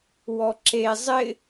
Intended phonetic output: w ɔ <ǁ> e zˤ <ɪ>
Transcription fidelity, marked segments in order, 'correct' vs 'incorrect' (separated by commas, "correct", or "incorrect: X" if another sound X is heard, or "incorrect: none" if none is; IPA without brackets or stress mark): correct, correct